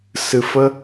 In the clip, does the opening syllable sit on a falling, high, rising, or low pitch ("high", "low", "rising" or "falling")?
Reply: low